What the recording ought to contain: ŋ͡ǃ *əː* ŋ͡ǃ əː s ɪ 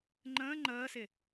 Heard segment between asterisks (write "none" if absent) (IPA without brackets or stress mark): ə̃ː